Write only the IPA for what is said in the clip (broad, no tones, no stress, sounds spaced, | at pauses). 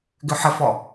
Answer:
ɡ ʏ ħ ə f ɔ